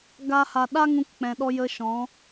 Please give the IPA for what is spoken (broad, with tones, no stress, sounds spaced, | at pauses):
ɡ a˦ h a˧ ɗ a˦ ŋ ũ˧ k k͡p ɛ̃˨ ɗ ɔ˧ j ə˧ ʃ ɔ̃˨˦